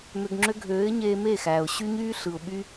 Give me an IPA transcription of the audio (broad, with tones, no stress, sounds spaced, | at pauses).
m ø˧ ɡ ŋ͡ǁ ø˦ ɡʱ øː˨˦ ɪ̯ ɲ eː˧ m e˦˨ x æ˨ ʊ̯ ɕ y˦ ɲ yː˦ ɬ ɯ˨ ʊ̯ ɓ y˦